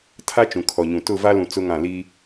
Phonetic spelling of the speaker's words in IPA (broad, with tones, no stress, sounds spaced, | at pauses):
tʰ a˦ t͡ʃ ũ˨ kʰ ɔ˨ ɲ ũ˨ t ʊ˦˨ v a˦ l ũ˨ t͡s ʊ˦ ŋ ã˦˨ l i˦